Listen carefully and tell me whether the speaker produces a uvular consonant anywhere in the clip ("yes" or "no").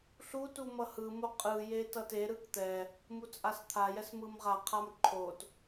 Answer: yes